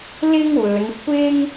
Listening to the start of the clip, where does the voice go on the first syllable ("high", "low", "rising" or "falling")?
high